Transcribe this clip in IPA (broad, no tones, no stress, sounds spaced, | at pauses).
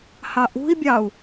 h ɑ ʔ ṳ i̯ bʲ ɑ u̯